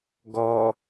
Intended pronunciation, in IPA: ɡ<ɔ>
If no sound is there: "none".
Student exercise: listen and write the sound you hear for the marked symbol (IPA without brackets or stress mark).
ɔ